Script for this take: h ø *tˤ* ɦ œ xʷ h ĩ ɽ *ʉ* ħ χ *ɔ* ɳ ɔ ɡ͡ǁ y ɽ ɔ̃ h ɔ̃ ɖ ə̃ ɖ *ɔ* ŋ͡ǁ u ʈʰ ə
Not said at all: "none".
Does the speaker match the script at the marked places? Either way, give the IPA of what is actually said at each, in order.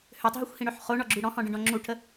tˤ, ø, o, ɔ̃

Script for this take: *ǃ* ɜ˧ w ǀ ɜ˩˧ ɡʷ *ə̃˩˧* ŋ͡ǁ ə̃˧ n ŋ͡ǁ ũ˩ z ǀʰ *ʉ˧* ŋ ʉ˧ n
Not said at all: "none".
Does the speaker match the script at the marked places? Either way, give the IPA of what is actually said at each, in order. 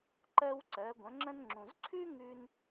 ǃ, ə̃˩˧, ʉ˥

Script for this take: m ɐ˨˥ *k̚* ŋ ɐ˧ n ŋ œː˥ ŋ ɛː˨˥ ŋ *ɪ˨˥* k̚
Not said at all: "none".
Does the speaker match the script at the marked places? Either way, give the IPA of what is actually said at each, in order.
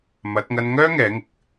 t̚, ɪ˨˥

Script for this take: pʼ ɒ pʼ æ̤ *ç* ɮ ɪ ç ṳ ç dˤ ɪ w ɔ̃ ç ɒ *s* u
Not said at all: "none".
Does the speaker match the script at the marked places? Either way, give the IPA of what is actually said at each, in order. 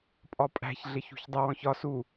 ç, s

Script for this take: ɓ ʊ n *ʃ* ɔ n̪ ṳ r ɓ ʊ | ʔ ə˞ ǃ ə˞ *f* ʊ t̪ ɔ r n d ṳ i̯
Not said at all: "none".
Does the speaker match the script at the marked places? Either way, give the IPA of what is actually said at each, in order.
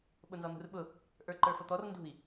z, f

